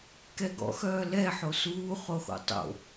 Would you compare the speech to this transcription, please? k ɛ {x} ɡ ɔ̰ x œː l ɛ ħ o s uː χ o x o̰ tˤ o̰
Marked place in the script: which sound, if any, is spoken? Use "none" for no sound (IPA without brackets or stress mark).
none